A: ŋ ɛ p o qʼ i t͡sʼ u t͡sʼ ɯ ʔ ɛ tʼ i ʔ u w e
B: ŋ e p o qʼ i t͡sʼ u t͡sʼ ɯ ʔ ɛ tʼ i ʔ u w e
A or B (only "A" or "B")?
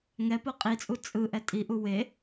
A